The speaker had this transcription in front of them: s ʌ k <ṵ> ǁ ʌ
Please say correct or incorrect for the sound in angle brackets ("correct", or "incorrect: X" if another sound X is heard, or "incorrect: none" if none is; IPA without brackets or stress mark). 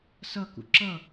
correct